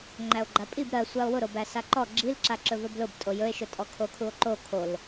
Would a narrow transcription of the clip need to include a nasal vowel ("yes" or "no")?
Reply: no